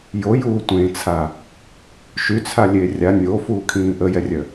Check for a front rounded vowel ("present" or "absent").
present